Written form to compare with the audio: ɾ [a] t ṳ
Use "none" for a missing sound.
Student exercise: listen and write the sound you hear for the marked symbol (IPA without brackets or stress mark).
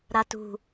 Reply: a